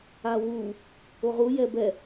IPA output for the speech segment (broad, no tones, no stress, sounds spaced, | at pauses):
a w u | o ʁ u j ɛ b ɛ